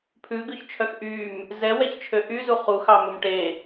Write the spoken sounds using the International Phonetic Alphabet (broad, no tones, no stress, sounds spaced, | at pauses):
pʰ ʉ ɡ ʉ ç t͡ʃʰ œ x ʔ y m | z ɛ w ɛ ç t͡ʃʰ ø ʔ y z u χ u x ɑ m ɵ m ʈ e